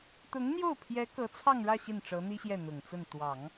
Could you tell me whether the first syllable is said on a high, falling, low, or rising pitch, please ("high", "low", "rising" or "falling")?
rising